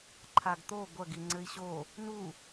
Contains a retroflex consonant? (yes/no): no